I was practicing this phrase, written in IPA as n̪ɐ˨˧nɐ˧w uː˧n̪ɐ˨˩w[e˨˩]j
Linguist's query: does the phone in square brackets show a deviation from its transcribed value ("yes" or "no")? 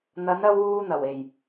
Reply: no